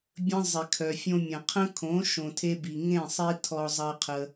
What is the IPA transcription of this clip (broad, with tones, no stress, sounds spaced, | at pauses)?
bʲ ə̃˦ zˤ ɪ˨ kʰ œ˨ fʲ õ˧ mʲ ɐ̃˨ qʰ ə̃˦ kʰ õ˨˦ ʃ õ˨ tʰ e˦ b i˨ ŋ ẽ˦˨ sˤ i˧ tʰ ɔ˨ zˤ ɐ˧ qʰ ə˧